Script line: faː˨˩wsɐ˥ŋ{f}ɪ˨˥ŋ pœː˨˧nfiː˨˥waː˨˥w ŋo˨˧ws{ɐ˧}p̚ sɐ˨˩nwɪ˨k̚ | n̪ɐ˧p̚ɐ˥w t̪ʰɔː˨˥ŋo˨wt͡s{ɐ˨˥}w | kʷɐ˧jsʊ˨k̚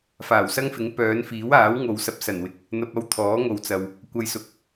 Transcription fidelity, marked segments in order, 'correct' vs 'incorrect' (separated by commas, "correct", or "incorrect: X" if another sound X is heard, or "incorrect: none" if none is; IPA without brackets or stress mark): correct, correct, incorrect: ɐ˨